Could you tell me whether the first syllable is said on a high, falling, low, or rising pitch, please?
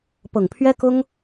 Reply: low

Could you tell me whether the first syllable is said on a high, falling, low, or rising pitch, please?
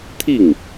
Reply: falling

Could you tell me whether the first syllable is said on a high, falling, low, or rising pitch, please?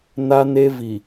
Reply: high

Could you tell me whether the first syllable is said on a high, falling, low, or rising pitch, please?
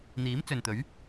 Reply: rising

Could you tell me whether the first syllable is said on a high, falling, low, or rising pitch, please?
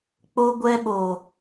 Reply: high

